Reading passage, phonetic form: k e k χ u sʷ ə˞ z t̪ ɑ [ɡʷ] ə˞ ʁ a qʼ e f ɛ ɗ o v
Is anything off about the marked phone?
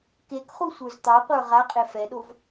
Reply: yes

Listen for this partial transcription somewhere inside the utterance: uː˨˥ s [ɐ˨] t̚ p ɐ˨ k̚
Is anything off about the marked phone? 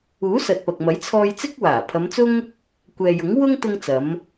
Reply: no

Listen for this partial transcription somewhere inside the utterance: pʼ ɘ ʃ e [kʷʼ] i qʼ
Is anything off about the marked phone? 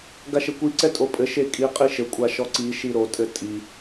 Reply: yes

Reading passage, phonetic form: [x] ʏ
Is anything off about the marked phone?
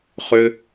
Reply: yes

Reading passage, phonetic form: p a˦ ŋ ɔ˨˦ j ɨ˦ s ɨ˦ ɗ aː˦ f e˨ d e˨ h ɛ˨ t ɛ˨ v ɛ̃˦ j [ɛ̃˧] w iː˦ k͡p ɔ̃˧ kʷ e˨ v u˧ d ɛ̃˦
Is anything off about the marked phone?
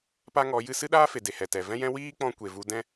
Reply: yes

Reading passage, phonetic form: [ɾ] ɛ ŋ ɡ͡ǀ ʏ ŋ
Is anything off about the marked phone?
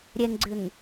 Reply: yes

